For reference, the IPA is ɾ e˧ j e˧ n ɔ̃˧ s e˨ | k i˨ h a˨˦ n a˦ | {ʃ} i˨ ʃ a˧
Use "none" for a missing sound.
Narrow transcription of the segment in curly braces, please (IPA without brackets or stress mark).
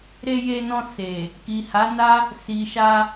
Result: s